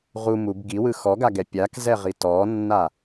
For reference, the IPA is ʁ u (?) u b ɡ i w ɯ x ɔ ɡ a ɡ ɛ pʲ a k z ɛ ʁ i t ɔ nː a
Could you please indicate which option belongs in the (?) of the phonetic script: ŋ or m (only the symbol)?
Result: m